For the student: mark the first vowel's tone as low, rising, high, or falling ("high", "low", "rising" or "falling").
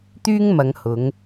high